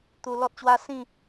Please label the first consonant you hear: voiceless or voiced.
voiceless